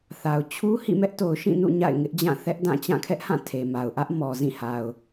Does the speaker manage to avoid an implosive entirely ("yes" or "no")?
yes